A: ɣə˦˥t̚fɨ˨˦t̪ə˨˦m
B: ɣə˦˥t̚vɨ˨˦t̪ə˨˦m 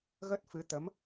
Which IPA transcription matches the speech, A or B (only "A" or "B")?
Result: A